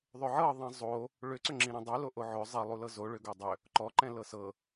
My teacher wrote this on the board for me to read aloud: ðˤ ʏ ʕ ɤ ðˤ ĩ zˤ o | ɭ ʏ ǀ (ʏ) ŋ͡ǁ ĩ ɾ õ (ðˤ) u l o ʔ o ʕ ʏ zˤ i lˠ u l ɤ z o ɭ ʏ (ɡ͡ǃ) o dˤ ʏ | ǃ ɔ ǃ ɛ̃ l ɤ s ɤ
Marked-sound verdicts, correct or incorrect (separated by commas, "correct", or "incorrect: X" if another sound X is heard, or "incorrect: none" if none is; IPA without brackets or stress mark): correct, incorrect: dˤ, incorrect: ɡ